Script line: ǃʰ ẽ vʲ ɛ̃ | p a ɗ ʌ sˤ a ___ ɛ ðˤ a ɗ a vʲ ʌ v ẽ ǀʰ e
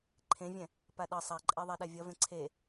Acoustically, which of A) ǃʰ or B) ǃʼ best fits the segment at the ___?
B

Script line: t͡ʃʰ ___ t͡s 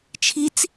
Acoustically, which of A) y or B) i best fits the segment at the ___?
B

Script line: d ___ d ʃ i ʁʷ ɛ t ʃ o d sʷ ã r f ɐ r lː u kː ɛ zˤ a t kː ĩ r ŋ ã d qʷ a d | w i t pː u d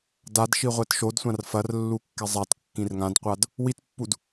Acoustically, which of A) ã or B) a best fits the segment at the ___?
B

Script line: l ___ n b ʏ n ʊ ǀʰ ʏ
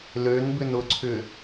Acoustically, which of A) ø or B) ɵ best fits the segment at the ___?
A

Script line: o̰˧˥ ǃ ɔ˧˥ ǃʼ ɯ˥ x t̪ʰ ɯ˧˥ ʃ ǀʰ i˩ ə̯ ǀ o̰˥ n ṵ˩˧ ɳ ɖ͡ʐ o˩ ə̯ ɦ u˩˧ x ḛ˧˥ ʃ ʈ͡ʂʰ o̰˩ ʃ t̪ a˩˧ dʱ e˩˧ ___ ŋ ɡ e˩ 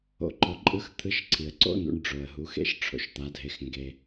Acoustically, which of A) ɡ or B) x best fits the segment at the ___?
B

